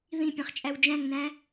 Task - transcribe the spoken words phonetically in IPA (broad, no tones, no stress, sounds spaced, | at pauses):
ð ĩ pʲ ẽ χ t͡ʃʼ æ w d͡ʒ æ̃ ŋ n æ̃